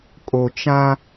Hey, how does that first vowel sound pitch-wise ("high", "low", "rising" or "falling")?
low